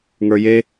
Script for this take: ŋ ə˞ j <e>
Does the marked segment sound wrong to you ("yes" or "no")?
no